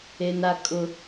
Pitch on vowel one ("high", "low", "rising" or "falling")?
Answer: high